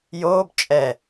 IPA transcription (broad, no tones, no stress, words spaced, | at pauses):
joːb t͡ʃʼɛ